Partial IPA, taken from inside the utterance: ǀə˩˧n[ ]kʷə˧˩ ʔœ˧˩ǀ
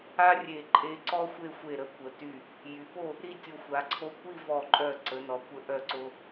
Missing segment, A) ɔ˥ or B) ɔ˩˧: B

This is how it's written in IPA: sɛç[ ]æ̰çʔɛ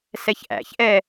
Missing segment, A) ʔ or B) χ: A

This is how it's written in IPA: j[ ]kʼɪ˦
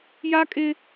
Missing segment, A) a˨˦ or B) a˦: B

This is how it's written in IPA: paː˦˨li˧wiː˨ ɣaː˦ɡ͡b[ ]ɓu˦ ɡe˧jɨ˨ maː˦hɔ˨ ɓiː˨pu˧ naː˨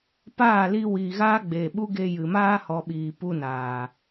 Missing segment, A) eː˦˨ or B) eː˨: B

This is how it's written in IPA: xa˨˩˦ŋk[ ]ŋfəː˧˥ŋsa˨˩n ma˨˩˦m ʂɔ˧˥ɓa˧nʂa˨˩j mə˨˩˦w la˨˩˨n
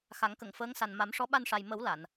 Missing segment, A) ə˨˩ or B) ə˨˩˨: B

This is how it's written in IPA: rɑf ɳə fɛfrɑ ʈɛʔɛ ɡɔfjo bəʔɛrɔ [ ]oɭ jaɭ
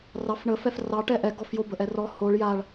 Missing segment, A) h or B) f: A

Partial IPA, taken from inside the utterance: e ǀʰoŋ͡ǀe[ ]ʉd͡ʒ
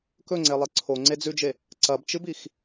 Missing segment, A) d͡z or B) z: A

